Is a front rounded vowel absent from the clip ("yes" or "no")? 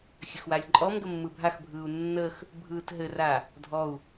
yes